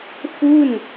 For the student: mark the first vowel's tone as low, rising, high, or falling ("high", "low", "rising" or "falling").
falling